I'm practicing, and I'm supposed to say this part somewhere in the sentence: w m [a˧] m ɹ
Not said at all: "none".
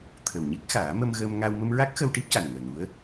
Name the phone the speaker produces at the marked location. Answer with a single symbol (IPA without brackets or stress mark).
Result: ə˧